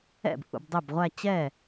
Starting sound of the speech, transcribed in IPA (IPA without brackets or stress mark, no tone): ɛ̰